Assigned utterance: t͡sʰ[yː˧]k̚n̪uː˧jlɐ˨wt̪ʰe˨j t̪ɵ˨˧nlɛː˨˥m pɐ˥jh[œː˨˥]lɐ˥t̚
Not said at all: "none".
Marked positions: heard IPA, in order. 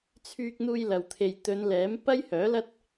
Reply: yː˧, œː˨˥

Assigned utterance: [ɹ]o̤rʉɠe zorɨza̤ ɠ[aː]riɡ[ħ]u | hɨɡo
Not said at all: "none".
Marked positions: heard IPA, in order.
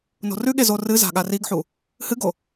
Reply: n, a, ħ

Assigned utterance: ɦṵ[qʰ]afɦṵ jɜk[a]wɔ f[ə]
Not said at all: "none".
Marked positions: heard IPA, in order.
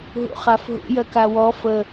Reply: χ, a, ə

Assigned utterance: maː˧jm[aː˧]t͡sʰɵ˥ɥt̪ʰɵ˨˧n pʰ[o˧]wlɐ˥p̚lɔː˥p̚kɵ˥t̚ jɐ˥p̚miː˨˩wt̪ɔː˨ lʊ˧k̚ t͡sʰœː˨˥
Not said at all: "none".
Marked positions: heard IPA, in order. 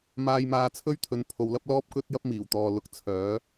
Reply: aː˧, o˨˧

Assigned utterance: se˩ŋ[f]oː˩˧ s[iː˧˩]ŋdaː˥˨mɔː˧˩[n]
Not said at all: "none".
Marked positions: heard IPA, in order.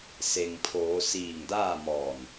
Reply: pʰ, iː˧˩, n

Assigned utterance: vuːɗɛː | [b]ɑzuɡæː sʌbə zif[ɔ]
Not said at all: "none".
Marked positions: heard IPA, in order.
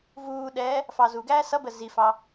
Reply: f, ɑ

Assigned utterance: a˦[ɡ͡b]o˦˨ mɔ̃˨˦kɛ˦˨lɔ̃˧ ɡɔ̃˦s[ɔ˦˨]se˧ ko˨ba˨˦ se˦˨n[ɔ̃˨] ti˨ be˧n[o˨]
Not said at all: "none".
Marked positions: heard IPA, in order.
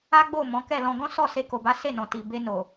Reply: ɡ͡b, ɔ˦˨, ɔ̃˨, o˨

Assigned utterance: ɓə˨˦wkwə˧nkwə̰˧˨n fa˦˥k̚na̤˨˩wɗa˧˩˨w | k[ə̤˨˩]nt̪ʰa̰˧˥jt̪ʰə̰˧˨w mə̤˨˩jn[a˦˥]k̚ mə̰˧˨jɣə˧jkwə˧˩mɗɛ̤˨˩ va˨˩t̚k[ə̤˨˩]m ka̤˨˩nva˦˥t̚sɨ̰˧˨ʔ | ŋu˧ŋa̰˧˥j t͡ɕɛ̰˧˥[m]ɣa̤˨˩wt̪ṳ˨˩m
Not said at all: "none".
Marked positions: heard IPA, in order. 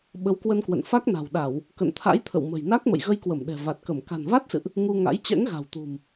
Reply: ə̰˧˨, a˦˥, ə˧˩, ŋ

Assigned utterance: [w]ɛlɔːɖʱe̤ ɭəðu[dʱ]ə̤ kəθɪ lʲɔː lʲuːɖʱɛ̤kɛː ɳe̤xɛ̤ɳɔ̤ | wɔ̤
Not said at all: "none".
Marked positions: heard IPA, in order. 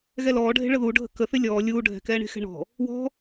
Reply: ɣ, ɖʱ

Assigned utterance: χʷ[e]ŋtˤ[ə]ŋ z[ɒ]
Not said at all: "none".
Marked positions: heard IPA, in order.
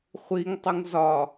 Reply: i, ə, ɒ

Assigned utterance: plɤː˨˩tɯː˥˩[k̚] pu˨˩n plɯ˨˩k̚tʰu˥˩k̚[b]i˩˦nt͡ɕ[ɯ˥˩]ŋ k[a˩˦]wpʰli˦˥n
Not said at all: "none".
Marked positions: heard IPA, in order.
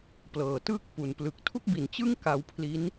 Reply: k̚, b, ɯ˥˩, a˧

